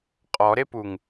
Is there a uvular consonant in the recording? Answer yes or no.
yes